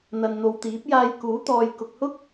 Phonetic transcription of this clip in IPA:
n̪ ɐ˨ n n̪ o˨ w t̪ iː˨˥ p̚ j aː˧ j k uː˨˥ t̪ ɔː˨ j k ʊ˨ k̚ h ʊ˥ k̚

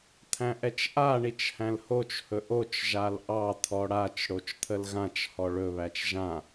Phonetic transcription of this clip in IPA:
t̪ʰ æ̃ ʔ ɛ t͡ʃ ʔ a ɳ i t͡ʃ h æ̃ l h o t͡ʃ h ɵ ʔ o t͡ʃ ʒ a l ʔ ɑ t̪ʰ ɔ ɽ a t͡ʃ ɽ o t͡ʃ t̪ʰ ə l ɣ ã t͡ʃ h ɔ ɭ ɵ β æ t͡ʃ ʒ ã

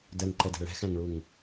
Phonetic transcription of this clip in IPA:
d ɜ ŋ ǃ ɛ d ɛ̤ ɭ ɛ̤ x æ̃ ŋ ɭ u ŋ

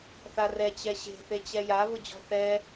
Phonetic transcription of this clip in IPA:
θ a r ɛ t͡ɕ ɛ ɕ e̤ θ e t͡ɕ ɛ j a β ʊ d͡ʑ ɔ̤ θ ɛ

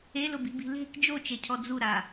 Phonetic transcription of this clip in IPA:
e l ʊ b i̤ b i̤ l e̤ k d͡ʒ o t͡ʃ e cʰ ɔ d͡z u ɾ a

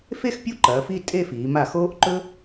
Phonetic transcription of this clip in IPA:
f e˥˧ x pʲ u˥ ǃ ɐː˩˧ f i˥˧ tʼ e˥˧ f iː˩˧ m a˧˩ x oː˥ ʔ ǃ ɵ˥

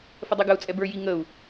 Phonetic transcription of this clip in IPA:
f ə dˤ i ɡ ə u̯ t͡sʼ ɛ b ə˞ j i ŋ ə u̯

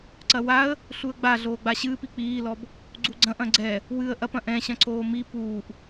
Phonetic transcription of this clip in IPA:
ǀ ɐ w a ə̯ | ɬ u ə̯ ɡ͡b a ɮ oː ɡ͡b a ɕ ɨː p i k͡p iː l ɔ b | ɡ͡ǀ u ɡ͡ǀ ɐ̃ ʔ ɐ̃ ɡ͡ǀ ɛ | w ɨ ə̯ ʔ ɐ p ɐ̃ ʔ ɛ̃ ɕ ɐ̃ ǀʰ oː m i p uː ʔ

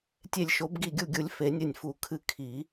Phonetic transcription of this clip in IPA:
tʲ e˧˩ lʲ ʃ o˨˩˦ b ɡ i˧˩ ɡʲ u˧˩ ɡʲ u˨˩˦ lʲ f e˨˩˦ nʲ ɘ˧˩ nʲ f u˨˩˦ kʰ ɨ˧˩ kʰ i˨˩˦

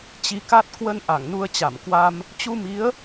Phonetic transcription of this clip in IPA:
t͡ɕ i˨˦ k a˦˥ t̚ k w ə˧ n ʔ a˧˩ ŋ n u˧ ə̯ t͡ɕ a˧˩ m k w a˧ m | t͡ɕ u˧ m i˨˦ ə̯

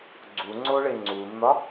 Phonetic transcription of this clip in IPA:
ɡ͡ǀ u ŋ͡ǀ o ɭ e ŋ͡ǀ u nː ɒ

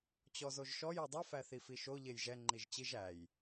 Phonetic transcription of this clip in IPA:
t͡ɕ ɔ z o ʒ ʃ ɔ j e dˤ i f æ θ i f i ʃ o ʎ e j ʒ ɛ ŋ͡ǃ i ʒ t͡ɕ i ʒ æ j

